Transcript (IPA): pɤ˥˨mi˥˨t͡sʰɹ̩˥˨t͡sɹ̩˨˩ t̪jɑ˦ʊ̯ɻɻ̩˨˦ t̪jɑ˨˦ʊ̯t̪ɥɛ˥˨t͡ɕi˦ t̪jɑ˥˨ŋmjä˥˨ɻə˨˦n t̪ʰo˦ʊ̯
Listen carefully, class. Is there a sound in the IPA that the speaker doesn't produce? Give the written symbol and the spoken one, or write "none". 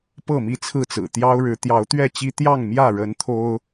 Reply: none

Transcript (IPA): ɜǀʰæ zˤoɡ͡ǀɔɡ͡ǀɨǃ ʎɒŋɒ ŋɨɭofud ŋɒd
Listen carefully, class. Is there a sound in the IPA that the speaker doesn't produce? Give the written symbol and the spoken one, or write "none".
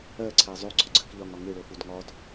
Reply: ǃ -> k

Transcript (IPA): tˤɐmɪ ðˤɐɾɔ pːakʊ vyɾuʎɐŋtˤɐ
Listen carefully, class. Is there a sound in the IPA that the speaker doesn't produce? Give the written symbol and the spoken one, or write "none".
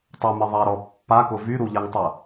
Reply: none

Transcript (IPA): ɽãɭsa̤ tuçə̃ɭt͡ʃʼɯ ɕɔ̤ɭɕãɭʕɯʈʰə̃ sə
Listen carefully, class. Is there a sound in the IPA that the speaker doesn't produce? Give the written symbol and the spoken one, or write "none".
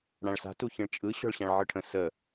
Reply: none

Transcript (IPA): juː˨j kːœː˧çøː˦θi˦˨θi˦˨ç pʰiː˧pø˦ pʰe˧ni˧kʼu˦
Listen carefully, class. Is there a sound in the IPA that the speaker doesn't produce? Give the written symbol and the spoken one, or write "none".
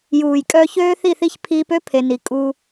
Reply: kː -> kʼ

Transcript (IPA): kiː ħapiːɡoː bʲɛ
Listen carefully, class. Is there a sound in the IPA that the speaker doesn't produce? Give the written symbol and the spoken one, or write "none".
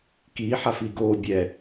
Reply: p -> f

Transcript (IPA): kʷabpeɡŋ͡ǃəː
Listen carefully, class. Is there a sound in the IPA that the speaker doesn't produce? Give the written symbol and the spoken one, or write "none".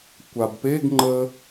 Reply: none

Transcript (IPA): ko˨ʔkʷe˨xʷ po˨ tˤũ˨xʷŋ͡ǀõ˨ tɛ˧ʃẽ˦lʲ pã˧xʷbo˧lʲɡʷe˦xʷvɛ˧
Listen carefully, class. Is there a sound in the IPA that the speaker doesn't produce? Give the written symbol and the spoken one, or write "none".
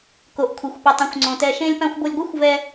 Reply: kʷ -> kʷʰ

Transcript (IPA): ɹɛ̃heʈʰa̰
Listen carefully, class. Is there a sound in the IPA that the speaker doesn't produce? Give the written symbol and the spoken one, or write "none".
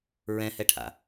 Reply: e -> ɛ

